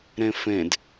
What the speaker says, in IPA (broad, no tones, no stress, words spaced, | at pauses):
ɾẽfẽd